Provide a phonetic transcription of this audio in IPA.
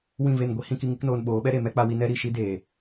w ĩ˦˨ v e˦˨ n ɡʷ i˦ h ĩ˦ k i˦ ŋ i˦ k n oː˧ n ɓ oː˨˦ ɓ ɛ˦ ɾ e˨ m ɛ˦ k͡p a˧ w i˧ n ɛ˦ ɾ i˦˨ ʃ i˦ d eː˨

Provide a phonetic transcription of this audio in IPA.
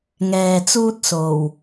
ŋ ɛː˨ t͡s uː˥ t̚ s o˨˩ w

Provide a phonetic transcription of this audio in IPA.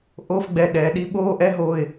ʔ o˧˥˧ f ɡ͡b ɛ˧˩ ɗ ɛː˩ ɗ i˨˦ ɓ oː˧˥˧ ʔ ɛ˧˥˧ ɦ oː˧˩ ɪ̯

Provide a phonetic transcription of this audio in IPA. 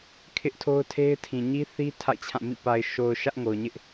kʰ ɪ˦ ʔ tʰ o˦ ʊ̯ tʰ e˦ ɪ̯ tʰ ĩ˨ ɲ i˦ θ i˦ tʰ a̰˦˨ ɪ̯ t͡ɕʰ ã˦˨ m ḭ˦˨ p a˨ ɪ̯ ʃ o˨ ʊ̯ ʃ ä˦ ʔ ŋ o˨ ʊ̯ ɲ ɪ˦ ʔ

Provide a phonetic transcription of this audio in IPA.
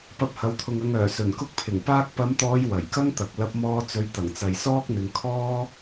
p ɐ˧ p̚ h ɐ˨˥ w t̪ʰ ʊ˨ ŋ ɐ˨ ŋ œː˨˩ s ɵ˨˩ n k ʊ˥ k̚ pʰ ɪ˨˩ ŋ p aː˧ k̚ p ɐ˨˧ m t̪ ɔː˨˧ j w ɐ˨˩ j k ɐ˥ ŋ t̪ ɐ˨ k̚ l ɐ˧ p̚ m ɔː˧ t͡s ɵ˨˧ ɥ t̪ ɐ˨˩ ŋ t͡s ɐ˨ j s ɔː˥ k̚ n̪ ɪ˨˧ ŋ kʰ ɔː˥

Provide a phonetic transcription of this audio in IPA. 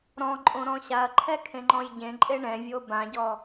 ɾ ɔ̃ ǃʼ õ ɾ ɔ̃ ɕ a ɐ̯ ǃʰ ɛ kʰ ẽ ŋ͡ǃ ɔ̃ j ɟ ẽ ǃʼ e ɳ ɛ̃ vʲ o b ã ɟ ɔ

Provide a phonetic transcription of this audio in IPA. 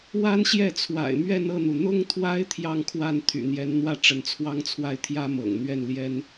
w a˥ n ɕ j ɛ˥˩ t͡sʰ w a̰˨˩ ɪ̯ m ɥ ɛ˥˧ n ɤ˥˩ n̪ u˩ n̪ ʊ˥ ŋ t̪ʰ w a˥ ɪ̯ t̪ʰ j ɑ˥˧ ŋ kʰ w a˥˩ n t̪ʰ y̰˨˩ n̪ j ɛ˧˥ n n̪ w ä˥ ʈ͡ʂ ə˧˥ n t͡sʰ w ɑ˥ ŋ t͡sʰ w a˥˩ ɪ̯ t̪ʰ j ä˥ m ɤ̰˨˩ ŋ n̪ ɥ ɛ˥˩ n l j ɛ˥ n

